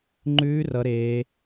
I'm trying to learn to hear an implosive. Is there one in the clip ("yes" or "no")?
no